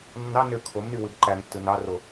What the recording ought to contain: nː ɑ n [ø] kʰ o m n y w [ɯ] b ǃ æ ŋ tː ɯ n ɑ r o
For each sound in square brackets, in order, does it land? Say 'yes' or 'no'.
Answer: yes, yes

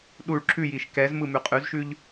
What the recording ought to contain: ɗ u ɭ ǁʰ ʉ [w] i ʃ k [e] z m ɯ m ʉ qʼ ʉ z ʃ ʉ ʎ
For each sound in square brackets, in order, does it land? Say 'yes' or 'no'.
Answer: no, no

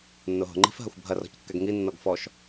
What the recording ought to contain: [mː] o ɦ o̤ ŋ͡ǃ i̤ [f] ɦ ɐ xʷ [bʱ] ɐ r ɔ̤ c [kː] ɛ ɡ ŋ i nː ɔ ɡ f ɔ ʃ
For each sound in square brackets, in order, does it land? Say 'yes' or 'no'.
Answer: no, yes, yes, yes

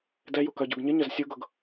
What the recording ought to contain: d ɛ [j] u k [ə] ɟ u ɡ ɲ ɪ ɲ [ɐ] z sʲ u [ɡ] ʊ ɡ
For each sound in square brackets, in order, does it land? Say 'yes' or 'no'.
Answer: yes, no, yes, yes

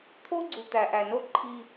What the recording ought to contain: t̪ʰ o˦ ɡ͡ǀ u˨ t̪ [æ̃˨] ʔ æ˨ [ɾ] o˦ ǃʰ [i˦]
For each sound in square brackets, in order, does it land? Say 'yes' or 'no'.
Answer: no, no, yes

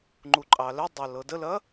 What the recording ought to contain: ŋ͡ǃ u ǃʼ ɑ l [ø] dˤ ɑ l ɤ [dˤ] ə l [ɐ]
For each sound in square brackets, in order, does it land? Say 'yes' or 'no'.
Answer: no, no, yes

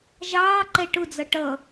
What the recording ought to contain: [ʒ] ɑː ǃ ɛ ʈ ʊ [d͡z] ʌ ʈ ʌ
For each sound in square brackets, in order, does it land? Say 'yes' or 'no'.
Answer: yes, yes

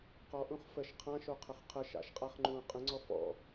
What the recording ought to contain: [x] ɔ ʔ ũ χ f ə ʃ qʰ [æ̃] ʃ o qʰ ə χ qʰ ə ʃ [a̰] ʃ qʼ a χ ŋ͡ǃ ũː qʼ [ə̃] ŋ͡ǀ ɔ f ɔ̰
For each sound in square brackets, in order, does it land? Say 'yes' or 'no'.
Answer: no, no, yes, yes

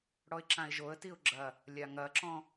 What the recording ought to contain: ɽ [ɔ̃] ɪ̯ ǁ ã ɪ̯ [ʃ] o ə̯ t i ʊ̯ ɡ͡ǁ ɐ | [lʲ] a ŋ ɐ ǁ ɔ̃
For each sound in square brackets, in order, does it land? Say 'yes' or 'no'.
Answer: no, no, yes

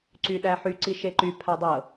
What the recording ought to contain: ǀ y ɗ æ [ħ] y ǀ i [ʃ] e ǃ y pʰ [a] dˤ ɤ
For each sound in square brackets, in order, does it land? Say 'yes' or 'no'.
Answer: yes, yes, yes

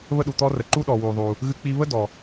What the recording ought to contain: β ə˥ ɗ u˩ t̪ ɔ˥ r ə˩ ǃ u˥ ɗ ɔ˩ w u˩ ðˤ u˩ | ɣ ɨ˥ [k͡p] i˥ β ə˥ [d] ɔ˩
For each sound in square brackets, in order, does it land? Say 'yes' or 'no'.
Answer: yes, yes

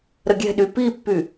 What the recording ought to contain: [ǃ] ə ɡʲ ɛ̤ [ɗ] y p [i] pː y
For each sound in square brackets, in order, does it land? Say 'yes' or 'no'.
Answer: no, yes, yes

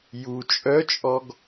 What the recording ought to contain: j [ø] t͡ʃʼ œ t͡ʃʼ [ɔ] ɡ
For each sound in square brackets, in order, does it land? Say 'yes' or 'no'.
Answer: no, yes

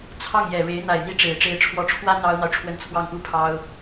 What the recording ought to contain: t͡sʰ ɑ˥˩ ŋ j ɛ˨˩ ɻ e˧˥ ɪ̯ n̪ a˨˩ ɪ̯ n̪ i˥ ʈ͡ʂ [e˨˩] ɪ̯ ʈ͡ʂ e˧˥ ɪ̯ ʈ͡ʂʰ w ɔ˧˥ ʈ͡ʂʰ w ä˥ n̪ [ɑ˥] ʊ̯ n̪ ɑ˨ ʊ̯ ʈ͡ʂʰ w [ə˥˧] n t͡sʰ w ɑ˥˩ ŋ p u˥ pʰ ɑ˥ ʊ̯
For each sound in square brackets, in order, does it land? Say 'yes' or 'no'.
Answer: yes, yes, yes

